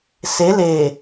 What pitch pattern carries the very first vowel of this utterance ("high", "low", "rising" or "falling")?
rising